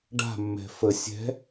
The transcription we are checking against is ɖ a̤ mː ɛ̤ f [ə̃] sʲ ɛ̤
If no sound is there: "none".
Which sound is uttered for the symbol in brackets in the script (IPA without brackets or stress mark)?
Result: ə